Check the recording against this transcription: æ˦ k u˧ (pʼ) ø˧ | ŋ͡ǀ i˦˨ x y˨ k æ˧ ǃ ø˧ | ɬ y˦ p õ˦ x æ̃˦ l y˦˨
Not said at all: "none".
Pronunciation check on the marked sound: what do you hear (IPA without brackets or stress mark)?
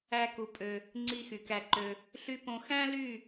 pʼ